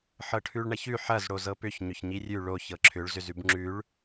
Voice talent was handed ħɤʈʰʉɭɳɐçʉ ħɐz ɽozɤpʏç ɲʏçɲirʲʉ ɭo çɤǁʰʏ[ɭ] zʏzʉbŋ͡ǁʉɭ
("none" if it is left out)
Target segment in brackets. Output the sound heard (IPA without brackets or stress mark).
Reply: ɭ